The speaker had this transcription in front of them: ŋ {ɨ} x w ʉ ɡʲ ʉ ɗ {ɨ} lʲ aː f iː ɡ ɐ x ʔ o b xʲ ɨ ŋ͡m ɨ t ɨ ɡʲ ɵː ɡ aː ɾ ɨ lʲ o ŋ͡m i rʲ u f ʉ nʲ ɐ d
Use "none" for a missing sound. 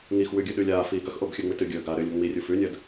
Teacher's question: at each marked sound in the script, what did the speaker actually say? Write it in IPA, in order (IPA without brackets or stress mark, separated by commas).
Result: i, ʉ